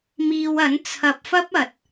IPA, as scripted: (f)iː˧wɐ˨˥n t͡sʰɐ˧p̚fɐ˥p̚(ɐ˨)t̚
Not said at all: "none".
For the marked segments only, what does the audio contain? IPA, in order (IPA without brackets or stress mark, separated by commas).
m, ɐ˨